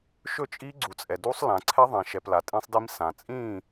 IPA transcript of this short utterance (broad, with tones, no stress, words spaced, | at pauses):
ʃɵ˥˨t͡ʃʼi˦˥ ɡ͡ǀu˨t͡sʼɛ˨ du˦˥sˤlã˨ ǀʰɛ˦˥ðˤɛ̃˨ʃɛ˨p la˨tʼĩ˦˥sˤdi˦˥msã˨ t͡sʼĩ˥˨